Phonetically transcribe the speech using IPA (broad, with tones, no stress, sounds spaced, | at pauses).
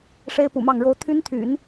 ʂ e˥ ɪ̯ p ṵ˨˩ m ɑ˥˩ ŋ ɻ o˥ ʊ̯ t̪ʰ y˥ n t̪ʰ y̰˨˩˦ n